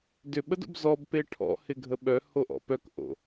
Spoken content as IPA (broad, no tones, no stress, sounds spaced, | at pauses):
d ʏ ɓ ə d o̰ b z ɔ b p e ʈʰ ɔ̰ h ɪ ɡʱ ə ɓ œ h o ʔ ɔ̰ p œ k ʔ o̰